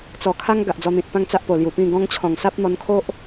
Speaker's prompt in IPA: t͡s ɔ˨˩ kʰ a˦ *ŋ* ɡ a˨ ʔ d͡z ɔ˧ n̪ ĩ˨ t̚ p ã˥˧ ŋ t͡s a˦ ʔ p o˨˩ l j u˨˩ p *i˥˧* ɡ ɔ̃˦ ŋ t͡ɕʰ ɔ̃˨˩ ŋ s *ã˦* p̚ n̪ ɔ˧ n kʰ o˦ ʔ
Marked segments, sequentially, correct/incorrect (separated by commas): correct, incorrect, incorrect